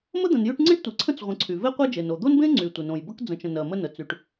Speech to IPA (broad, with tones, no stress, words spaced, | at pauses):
mə˥d̪ə̃˨njy˦ʈŋ͡ǀẽ˥ʈ tʷe˩ ǀʰə̃˥t͡s ʁʷə̃˨ǀʰy˩ ve˥qʷe˥d͡ʒe˩n o˩d̪o˥nbẽ˥ ŋ͡ǀy˩ tʷə˩nõ˩jbə˥k d͡zə̃˩t͡ʃə̃˩ nɜ˩mə˦nə˩ t͡sy˩ʈ